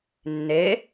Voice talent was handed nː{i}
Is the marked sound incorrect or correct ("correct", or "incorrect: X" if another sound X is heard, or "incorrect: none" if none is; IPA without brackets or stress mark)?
incorrect: e